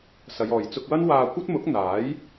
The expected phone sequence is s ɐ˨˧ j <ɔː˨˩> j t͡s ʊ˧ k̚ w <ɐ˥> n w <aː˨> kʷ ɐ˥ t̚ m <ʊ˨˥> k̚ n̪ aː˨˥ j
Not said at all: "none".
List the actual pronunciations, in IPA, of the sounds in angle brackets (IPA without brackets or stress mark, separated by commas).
ɔː˨, ɐ˥, aː˧, ʊ˨˥